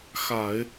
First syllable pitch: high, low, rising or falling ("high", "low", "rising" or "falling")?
low